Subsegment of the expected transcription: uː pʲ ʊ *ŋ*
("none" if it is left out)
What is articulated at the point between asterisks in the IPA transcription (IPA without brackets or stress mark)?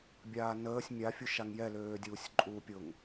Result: ŋ